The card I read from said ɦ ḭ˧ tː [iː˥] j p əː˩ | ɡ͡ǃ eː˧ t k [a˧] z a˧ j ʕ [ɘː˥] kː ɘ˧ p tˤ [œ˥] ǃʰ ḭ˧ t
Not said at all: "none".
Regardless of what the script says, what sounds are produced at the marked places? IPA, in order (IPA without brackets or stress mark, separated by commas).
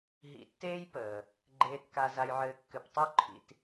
eː˥, a˧, ɘː˧, œ˥